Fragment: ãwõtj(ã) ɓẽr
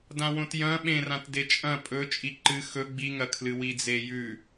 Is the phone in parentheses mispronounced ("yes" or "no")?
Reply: yes